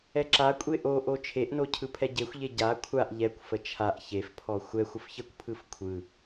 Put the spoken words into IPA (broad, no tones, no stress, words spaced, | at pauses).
ɛǁakʷʼe ʔoʔo t͡ʃʰeʔno cʰɯpʰɛɟexʷʎe ɟa kʷʰaʔ ʎɛkʷfə t͡ʃʰaʔ çefpʰɔ xʷɛxʷ əfçəkʷpʰɯf kʷʰɯ